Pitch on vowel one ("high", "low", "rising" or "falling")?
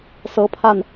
rising